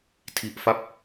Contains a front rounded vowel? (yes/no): no